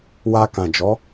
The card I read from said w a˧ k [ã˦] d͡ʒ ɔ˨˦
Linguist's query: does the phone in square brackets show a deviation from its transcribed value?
yes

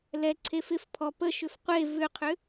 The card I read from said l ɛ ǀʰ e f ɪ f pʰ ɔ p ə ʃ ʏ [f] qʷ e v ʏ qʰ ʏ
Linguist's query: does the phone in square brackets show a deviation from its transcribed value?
no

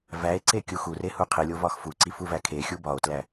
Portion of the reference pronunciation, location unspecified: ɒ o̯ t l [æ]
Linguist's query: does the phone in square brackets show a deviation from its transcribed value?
no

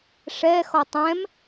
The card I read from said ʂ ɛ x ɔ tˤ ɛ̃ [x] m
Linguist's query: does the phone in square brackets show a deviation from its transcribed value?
yes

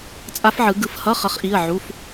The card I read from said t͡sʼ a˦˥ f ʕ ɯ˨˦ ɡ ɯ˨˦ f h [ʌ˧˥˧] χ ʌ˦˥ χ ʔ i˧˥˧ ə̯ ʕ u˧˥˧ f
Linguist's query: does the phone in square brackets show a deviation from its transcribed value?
no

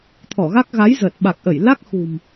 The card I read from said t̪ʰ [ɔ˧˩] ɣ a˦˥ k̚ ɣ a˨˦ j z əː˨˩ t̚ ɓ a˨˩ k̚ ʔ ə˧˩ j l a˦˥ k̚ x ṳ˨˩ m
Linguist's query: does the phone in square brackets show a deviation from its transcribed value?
no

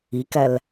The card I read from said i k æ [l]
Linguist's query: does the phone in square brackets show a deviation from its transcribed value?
no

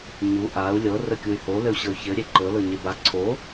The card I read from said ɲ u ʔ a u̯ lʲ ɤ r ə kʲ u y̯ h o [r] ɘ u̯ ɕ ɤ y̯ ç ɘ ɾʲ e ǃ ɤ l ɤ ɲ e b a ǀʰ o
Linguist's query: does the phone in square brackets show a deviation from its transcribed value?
yes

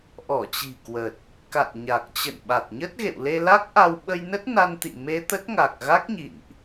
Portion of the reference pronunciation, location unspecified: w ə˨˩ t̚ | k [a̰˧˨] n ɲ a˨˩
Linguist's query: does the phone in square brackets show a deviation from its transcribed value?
no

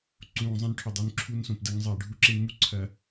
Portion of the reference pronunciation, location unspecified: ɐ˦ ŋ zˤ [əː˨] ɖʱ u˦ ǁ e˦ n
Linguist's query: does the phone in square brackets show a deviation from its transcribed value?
yes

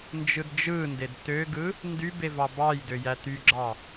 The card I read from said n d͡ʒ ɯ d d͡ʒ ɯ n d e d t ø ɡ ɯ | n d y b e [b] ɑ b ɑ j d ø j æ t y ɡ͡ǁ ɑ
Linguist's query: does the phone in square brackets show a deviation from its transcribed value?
yes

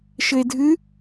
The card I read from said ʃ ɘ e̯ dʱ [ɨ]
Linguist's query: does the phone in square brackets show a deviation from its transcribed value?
no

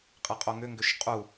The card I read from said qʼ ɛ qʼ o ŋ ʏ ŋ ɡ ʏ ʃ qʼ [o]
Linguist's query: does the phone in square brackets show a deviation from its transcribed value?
yes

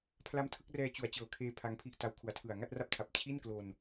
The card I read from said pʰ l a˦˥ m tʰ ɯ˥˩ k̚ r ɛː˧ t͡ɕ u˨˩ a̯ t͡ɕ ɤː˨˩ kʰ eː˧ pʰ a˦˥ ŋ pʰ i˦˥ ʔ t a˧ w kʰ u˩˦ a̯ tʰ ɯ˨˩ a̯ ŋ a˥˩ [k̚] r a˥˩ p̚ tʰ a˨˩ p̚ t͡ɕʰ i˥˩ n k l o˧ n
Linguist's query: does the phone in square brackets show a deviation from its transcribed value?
yes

